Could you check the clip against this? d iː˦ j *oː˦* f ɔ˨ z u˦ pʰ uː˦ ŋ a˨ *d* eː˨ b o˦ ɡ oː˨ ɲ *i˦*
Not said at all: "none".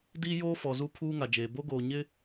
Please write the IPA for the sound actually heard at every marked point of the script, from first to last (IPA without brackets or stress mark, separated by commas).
oː˦, d͡ʒ, ɪ˦